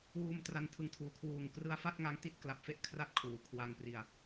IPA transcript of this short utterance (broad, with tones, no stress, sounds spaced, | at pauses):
w uː˧ m t r a˧ n tʰ ɯ˨˩ ŋ tʰ uː˩˦ kʰ w uː˨˩ ŋ k r ɯ˦˥ a̯ f a˥˩ t̚ ŋ a˦˥ ŋ t i˥˩ t̚ k l a˨˩ p̚ f e˥˩ ʔ kʰ r a˥˩ t̚ kʰ uː˩˦ kʰ w a˧ ŋ p r i˧ a̯